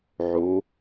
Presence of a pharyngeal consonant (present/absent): present